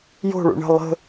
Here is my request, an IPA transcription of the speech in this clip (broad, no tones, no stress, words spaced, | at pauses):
jo̤ɭṵ ɳə̤ lˠə̤